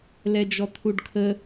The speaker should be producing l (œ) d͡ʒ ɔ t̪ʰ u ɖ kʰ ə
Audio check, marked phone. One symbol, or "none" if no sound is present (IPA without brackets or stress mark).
ɛ